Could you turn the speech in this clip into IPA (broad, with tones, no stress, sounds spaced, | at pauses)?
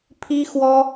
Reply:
pʰ i˥ x w ɔ˥